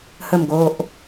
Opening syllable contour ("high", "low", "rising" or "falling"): low